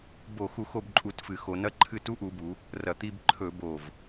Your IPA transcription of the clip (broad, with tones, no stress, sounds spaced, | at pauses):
b o˧˩˧ x u˧˩˧ x o˦˨ b ǃʼ u˧˩˧ t f ɨ˩˧ x o˩˧ n ɐ˦˥ ǃʰ ɨ˦˨ t u˦˥ ʔ u˩˧ b u˩˧ | r ɐ˨˩ t̪ i˦˨ b ǃʰ ɵ˧˩˧ b o˨˩ v